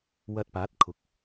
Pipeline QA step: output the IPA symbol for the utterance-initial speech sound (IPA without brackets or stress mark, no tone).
w